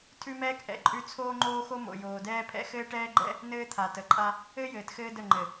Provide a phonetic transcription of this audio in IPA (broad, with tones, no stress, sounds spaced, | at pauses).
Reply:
tʰ ʉ˦ m ɛː˦ k ʔ ɛ̰˨ ǃʼ ʉ˦ t͡sʰ oː˦ ŋ͡ǃ oː˦ x o˦ m o̰˨ j oː˨ d ɛː˦ pʰ ɛ̰˦ x ɘː˦ ʈ ɛː˦ ɡ͡ǃ ɛ̰˦ | n ɘː˦ t̪ʰ a˨ t ə˨ ǃʼ a˦ | ɘ˦ j ɘː˨ t x ɘː˦ d ə˦˨ ŋ͡ǃ ɘ˨